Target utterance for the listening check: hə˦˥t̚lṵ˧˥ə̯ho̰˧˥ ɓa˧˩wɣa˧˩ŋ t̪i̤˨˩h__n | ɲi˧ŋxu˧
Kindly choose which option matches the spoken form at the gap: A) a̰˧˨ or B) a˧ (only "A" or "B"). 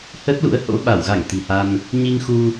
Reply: B